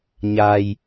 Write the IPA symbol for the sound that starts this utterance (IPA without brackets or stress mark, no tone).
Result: ɲ